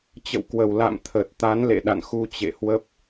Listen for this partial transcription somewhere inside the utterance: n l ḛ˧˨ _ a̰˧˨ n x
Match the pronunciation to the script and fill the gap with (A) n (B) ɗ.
B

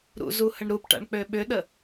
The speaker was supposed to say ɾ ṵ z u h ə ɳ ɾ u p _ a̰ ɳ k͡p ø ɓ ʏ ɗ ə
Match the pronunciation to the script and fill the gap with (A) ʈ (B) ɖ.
A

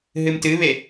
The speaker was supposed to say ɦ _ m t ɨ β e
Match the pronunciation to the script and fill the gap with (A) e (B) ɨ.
B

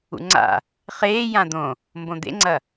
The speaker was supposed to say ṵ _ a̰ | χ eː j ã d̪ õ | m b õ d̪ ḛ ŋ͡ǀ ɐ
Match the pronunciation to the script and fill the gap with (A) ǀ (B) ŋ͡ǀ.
B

